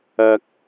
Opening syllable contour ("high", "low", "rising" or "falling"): low